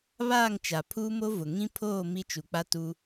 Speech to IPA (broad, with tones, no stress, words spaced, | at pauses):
βaː˦˨ŋt͡ʃa˨ pʰuː˦mo˦vʊ˨ ŋĩ˦pʰoː˦˨ mi˦t͡ʃu˨k͡pa˦ tu˦